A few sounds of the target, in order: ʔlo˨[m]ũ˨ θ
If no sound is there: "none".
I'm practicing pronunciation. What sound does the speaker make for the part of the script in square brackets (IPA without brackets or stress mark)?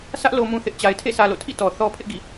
m